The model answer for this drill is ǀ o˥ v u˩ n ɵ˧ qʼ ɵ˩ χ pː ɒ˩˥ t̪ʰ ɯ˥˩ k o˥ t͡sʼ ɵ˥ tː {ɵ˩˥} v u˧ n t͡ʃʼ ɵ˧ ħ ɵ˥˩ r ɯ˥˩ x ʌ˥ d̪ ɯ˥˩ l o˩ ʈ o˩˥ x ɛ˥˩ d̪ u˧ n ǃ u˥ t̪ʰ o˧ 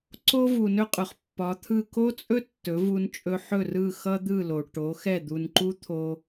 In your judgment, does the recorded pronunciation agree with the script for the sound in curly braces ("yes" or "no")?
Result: yes